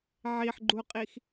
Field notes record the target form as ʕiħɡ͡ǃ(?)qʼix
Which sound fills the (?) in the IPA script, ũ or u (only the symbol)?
u